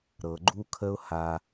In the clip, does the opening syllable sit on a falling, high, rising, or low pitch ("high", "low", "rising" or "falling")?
low